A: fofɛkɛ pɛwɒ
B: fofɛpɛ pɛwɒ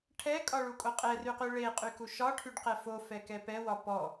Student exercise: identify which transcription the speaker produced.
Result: A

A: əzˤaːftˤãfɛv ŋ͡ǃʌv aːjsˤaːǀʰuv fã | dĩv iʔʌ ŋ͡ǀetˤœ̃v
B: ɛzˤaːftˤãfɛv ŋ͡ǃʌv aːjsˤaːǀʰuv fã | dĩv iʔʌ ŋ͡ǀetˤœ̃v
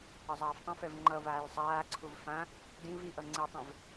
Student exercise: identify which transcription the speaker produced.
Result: A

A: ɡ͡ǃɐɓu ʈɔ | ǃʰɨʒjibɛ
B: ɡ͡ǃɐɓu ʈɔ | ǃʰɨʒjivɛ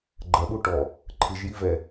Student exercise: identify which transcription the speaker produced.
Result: B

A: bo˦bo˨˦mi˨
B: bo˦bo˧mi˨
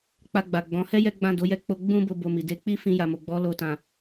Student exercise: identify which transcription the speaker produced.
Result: B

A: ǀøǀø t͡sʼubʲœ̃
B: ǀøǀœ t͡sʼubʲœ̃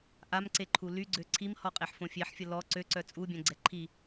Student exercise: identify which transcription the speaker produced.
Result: B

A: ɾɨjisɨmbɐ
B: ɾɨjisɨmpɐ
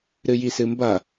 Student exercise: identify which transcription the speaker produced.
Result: A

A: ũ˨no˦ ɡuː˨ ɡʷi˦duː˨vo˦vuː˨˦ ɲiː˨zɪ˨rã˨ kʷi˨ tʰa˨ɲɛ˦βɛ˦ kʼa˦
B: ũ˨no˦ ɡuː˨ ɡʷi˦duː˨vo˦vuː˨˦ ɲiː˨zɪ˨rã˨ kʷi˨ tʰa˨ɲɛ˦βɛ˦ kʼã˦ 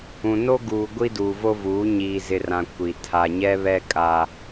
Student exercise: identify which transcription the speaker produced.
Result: A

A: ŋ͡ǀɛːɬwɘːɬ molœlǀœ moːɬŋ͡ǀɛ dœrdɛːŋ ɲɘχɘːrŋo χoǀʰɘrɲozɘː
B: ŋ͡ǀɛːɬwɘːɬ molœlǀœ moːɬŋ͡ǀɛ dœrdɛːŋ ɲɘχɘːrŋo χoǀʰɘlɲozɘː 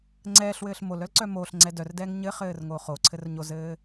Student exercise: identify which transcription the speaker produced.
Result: A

